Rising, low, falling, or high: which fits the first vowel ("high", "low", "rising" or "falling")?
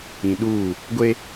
low